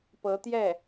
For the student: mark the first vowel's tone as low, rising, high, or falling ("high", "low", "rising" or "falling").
rising